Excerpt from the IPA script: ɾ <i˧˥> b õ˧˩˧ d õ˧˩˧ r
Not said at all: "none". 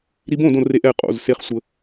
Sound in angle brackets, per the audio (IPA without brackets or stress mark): i˧˥